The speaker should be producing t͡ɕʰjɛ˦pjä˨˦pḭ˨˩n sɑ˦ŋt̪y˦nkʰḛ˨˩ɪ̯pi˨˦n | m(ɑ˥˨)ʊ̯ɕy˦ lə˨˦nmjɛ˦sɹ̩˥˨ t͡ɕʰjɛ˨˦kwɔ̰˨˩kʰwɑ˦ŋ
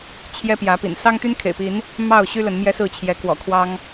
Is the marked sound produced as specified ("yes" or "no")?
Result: yes